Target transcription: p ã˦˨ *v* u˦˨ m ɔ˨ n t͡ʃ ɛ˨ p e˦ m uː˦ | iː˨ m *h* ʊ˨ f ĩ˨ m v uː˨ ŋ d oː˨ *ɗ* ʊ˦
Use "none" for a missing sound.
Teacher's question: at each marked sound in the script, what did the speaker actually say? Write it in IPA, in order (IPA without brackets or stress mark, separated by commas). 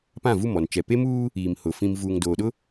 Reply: v, h, ɗ